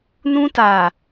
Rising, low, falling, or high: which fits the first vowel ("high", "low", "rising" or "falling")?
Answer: high